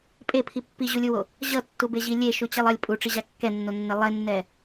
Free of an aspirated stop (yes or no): no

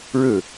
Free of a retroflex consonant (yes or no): no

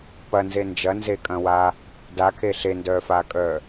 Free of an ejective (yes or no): no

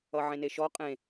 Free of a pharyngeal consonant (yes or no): no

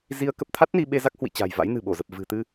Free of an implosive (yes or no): no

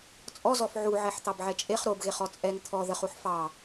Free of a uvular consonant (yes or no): no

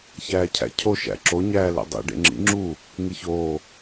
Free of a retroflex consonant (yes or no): no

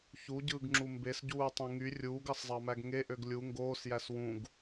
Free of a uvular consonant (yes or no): yes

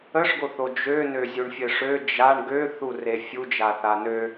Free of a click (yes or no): yes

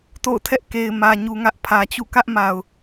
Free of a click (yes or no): yes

